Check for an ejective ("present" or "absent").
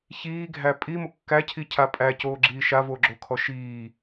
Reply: present